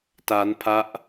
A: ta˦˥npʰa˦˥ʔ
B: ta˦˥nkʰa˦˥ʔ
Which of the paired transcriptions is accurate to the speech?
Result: A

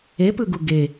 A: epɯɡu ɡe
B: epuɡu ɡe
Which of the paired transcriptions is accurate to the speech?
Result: A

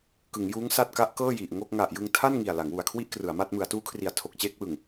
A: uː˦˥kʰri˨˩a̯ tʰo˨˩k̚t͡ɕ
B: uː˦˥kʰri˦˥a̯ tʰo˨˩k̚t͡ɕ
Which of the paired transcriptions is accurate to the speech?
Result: A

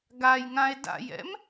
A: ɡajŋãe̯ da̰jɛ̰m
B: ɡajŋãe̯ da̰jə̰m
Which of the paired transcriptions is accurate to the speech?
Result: A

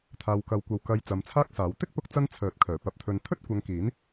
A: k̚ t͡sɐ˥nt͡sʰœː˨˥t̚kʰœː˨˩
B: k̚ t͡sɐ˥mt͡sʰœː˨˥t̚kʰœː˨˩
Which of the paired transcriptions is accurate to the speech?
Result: A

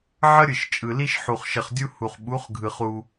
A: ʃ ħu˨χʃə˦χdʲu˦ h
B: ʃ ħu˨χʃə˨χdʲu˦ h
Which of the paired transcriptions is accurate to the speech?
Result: B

